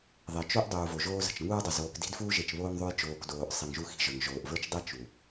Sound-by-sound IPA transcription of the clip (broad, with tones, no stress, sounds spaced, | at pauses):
ðˤ e˨ t͡ʃ o˦ ʔ dˤ uː˨ v o˨ ʒ oː˦ z ə̤˨ t͡ʃ ŋ uː˦ dˤ ə˨ z oː˨ k d i̤˦ d f uː˦ ʒ e˨ t͡ʃ β oː˦ ŋ ðˤ o˦ j t͡ʃ oː˨ k d oː˨ ʔ sˤ i˨ ŋ ʒ u˦ x i̤˦˨ ʒ ə˞˨ ŋ ʒ oː˨ ʔ v ə˞˦ t͡ʃ dˤ i˦ t͡ʃ u˨